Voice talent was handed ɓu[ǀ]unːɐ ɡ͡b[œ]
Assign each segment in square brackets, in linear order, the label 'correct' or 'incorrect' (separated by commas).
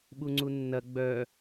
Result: incorrect, correct